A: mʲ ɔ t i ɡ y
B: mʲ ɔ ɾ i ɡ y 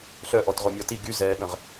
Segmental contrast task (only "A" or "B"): A